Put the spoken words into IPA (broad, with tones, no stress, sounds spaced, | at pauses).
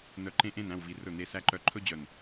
n œ˨ ǃ ẽ˦ ʔ ẽ˦˨ n æ̃˦˨ w v i˨ r ɵ˦˨ n̪ e˦ s æ˦ ǃ œ˦ ǃʰ ɵ˦ d͡ʑ œ˨ n